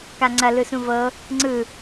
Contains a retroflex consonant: no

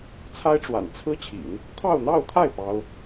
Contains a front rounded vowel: no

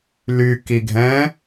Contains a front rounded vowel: yes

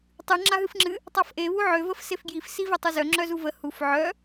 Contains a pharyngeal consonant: yes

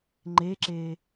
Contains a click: yes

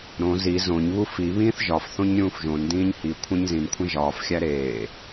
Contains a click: no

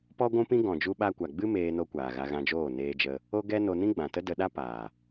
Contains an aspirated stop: no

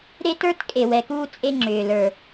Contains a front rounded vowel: yes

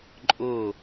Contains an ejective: yes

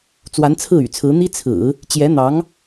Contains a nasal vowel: no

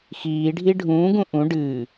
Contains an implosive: no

